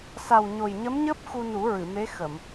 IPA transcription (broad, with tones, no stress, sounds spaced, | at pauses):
s a˨˩ w ɲ o˨˩ j ɲ ə˧˥ m ɲ əː˦˥ p̚ x u˧ n u˨˩˦ ɹ ɨ˨˩˨ m e˧˥ x ə˨˩˨ m